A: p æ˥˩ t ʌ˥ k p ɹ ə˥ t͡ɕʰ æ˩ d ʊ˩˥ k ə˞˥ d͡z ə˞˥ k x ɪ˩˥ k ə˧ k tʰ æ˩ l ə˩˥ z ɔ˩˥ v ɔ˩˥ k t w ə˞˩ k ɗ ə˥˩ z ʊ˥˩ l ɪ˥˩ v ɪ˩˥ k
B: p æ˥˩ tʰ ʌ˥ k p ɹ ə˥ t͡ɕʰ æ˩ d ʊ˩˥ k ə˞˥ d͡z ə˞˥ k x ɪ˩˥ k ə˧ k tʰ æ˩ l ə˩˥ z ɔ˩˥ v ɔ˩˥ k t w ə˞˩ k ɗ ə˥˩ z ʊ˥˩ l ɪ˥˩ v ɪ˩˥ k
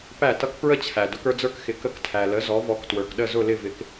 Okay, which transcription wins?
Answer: A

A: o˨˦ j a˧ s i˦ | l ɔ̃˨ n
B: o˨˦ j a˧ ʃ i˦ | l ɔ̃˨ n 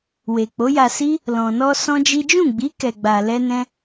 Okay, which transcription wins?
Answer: A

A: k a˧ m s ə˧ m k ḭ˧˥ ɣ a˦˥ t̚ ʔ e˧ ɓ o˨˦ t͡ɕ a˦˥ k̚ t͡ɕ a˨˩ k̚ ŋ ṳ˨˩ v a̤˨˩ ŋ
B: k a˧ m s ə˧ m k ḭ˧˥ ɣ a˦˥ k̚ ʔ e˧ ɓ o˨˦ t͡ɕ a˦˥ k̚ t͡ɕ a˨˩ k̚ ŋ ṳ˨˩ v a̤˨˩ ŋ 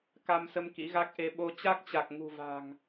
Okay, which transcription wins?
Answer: B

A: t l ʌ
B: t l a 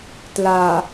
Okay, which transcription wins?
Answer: B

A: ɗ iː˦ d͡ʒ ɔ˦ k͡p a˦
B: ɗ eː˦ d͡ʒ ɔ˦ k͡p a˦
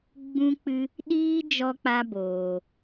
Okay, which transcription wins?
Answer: A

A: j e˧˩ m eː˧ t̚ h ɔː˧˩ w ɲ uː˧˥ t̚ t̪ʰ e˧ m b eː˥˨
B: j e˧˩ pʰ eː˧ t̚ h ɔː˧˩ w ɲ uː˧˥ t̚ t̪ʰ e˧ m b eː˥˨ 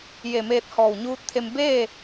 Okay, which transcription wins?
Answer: A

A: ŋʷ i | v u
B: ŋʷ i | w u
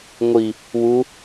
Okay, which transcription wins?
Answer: B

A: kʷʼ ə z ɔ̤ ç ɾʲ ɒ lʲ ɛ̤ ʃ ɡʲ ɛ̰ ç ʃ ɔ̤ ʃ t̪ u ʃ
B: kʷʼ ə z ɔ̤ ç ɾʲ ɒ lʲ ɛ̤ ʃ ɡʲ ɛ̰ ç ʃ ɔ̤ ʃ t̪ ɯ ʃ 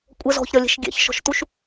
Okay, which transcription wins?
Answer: A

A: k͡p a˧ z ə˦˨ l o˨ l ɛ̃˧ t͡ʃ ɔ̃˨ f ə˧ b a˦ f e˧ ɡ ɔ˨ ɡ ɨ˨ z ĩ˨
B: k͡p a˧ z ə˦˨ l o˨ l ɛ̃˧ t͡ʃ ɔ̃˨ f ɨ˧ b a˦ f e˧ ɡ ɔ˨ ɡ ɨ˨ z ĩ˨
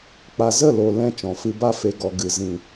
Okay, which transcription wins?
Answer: B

